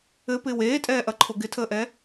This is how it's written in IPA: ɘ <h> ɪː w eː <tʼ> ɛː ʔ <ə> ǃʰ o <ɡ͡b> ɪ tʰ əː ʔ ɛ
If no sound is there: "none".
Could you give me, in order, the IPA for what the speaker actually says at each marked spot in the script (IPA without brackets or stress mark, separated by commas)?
p, tʼ, ɐ, ɡ